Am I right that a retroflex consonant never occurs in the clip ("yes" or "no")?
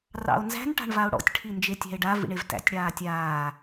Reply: no